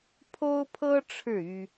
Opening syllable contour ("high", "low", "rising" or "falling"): high